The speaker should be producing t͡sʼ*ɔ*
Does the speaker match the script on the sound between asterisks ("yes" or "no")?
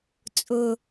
no